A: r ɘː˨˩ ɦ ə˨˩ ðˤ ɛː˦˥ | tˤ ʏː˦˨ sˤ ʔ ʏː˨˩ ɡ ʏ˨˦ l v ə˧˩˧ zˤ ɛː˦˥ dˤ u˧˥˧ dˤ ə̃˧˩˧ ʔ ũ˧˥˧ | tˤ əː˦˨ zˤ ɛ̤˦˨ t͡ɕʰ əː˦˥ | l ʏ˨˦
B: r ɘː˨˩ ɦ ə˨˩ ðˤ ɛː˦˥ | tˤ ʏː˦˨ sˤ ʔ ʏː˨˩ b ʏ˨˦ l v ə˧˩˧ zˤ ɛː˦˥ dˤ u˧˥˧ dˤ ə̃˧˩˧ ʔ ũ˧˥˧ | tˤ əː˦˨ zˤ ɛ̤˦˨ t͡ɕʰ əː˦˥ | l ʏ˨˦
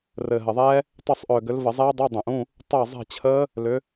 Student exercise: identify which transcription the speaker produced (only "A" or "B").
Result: A